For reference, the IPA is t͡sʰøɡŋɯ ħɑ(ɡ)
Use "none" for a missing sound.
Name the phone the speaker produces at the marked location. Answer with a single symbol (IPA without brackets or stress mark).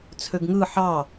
none